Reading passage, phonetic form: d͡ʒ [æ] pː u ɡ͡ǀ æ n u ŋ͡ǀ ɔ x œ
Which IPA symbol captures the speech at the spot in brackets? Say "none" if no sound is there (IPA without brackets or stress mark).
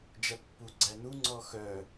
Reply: æ